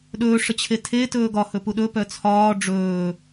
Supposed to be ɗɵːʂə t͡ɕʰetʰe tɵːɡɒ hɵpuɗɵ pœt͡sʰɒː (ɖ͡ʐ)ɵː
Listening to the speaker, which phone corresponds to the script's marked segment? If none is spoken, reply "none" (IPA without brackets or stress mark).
ɖ͡ʐ